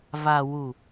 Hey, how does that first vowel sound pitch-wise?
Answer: low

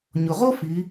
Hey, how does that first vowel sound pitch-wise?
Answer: low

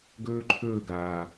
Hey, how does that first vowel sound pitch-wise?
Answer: high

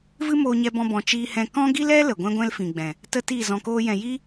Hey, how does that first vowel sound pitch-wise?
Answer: high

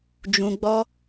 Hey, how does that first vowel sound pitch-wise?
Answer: low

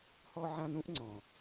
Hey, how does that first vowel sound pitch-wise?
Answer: high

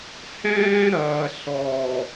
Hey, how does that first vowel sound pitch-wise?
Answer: high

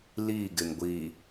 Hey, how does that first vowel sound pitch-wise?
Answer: falling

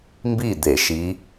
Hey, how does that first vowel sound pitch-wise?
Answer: falling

